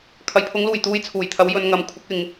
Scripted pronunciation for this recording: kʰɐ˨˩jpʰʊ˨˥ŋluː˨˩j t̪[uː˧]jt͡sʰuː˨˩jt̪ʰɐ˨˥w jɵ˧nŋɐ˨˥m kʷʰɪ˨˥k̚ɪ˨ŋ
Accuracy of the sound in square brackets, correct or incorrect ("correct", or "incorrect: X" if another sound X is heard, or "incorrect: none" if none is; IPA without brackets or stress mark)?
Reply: correct